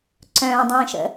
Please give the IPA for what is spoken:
ǀœ̃ːdˤĩːʃə̰

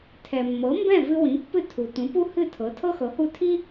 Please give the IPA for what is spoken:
tʰɛ˩mːɤ˩˥ mbɛ̃˥˩vɨ˧ wĩ˩˥ pːɨ˥˩ tʰu˩ tũ˩˥pu˥hɨ˥˩tʰɤ˩˥ tʰɤ˥xɤ˩˥hu˥˩ tʰi˥

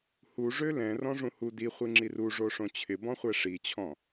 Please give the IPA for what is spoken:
hu ʐølɛ̃ rɔ̃ʐũhu di χʷiŋ͡ǁiru ʐoʂõt͡ɕʰɪ bɔ̃χʷɛʂit͡ɕʰɔ̃

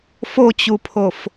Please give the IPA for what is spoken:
fot͡ɕupʰof

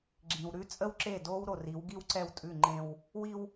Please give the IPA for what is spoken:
ɡ͡ǁĩ˨w ɾʉ˦t͡sʼə˦wǁe˦˨do˦w ɾo˨ri˨˦wɡi˦wǀɛ˦˨w tʼʉ˦˨ ŋ͡ǃẽ˦w | wi˦w

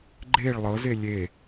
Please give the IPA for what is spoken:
ɡ͡ǃeɭ lˠɤze lʲe

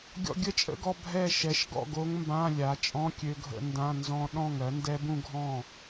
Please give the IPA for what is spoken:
ɡʲɔ̰˧ɡʲə˥˩t͡ʃʼə̰˥˧ɡɔ˧ bʱɛ˥˩ ʃɛ˩˥ʃɡɔ̰˥˩ ɡo˦˥ŋmbã˧˥˧lʲa˩˥ t͡ʃʼɔ̃˧˥˧kʲø˧ɡʱə̰˧ ndã˧˥˧nzɔ̃˦˥ ɗɔ̃˥˩ŋɜ˩˥ ndɛ˦˥bũ˥˧ɡʱɔ̃˥˩

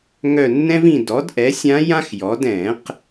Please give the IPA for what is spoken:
ŋœ˦˨nːɛ̃˥vĩ˦˨ dɔ˩˥dʔɛ˩˥sʲã˧˥ jã˥xjɔ˩˥d ɛ̃˨˩˦q

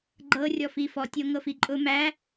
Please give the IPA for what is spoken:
ɡ͡ǃɤrʲɔfi fɔtʲoŋɤfi ǃʼʊ mæ

